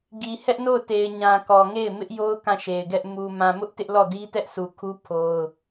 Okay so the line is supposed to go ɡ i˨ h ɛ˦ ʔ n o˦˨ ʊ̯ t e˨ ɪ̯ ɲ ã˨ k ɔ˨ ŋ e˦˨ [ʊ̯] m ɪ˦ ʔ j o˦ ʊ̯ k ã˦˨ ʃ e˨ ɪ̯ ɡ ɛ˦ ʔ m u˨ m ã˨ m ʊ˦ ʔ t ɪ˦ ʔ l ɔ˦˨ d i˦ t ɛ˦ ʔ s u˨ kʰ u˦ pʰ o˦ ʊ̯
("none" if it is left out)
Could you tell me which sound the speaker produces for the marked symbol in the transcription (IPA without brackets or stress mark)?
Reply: ɪ̯